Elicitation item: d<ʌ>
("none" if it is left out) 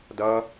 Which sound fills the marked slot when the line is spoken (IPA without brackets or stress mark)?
ʌ